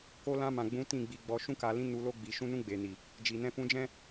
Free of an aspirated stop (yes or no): yes